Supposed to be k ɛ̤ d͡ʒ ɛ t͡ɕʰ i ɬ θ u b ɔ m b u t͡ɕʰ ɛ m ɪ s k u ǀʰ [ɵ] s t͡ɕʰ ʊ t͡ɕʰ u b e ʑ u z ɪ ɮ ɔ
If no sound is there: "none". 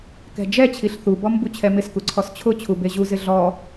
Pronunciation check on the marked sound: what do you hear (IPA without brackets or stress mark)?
ɔ